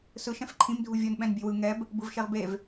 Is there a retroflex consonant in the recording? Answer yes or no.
no